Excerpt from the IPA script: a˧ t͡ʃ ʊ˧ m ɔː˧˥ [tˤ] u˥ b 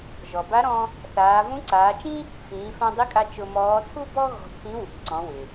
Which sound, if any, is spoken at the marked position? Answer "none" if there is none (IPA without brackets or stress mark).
tʰ